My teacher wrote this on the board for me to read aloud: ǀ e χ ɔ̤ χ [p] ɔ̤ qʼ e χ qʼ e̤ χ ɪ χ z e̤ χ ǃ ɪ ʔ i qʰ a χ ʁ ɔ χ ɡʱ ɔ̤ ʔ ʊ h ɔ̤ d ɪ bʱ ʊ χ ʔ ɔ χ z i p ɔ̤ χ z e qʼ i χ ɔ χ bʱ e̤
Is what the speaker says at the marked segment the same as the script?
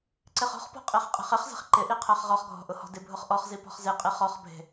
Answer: yes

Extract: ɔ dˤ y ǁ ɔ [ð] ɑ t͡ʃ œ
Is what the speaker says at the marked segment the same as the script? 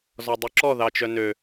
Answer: yes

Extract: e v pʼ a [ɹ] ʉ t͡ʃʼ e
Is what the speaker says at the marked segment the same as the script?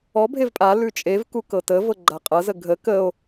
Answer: no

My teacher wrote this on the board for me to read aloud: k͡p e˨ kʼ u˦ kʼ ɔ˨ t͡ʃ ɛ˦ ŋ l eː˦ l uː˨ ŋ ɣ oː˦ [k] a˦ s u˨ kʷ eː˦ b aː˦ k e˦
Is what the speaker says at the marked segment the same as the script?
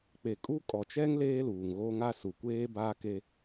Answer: no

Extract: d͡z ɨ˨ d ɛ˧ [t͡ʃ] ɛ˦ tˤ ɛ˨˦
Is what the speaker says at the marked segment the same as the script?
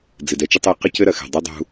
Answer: yes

